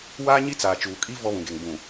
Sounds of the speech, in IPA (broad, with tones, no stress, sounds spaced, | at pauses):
w aː˦ ɲ i˦ t͡s aː˨ t͡ʃ uː˨ kʼ i˦ v ɔ˦ β ũ˨ ɡ e˨ ŋ b ũ˨